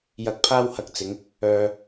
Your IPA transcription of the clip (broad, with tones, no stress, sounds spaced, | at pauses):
j ɐ˧ k̚ pʰ aː˥ w h ɐ˧ k̚ t͡s ɪ˨˧ ŋ | œː˧